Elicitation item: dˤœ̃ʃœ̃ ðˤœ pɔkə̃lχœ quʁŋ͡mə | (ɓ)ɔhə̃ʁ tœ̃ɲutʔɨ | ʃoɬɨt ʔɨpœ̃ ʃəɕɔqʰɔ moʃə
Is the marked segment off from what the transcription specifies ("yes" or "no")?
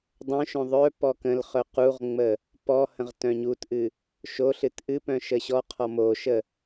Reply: yes